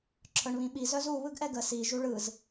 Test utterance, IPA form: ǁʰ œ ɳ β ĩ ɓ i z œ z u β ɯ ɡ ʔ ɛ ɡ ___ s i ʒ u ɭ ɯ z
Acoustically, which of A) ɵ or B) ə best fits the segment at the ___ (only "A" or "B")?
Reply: B